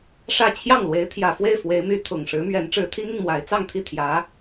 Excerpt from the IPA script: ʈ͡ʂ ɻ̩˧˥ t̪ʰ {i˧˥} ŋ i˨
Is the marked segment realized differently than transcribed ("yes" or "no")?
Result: yes